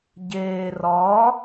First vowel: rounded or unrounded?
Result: unrounded